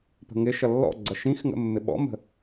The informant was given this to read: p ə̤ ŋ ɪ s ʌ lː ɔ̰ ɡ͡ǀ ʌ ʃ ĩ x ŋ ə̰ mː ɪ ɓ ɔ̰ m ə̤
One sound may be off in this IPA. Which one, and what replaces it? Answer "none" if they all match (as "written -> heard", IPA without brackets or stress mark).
s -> ʃ